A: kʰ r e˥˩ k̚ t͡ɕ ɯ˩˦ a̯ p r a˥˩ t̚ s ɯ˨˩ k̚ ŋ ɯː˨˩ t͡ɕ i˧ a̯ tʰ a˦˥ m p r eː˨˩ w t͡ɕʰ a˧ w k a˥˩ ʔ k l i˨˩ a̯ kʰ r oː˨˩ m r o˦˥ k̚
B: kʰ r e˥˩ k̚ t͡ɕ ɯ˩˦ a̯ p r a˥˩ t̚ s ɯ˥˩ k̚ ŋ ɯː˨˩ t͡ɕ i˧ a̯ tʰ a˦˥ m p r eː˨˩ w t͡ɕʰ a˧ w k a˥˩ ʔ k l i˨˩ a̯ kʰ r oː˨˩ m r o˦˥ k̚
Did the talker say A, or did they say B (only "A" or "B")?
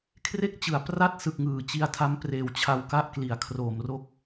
A